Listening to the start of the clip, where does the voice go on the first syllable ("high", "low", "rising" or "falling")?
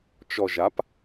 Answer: low